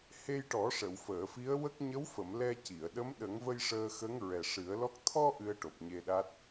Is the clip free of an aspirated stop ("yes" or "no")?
no